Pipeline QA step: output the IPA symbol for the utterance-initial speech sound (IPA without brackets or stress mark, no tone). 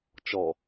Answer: t͡ʃ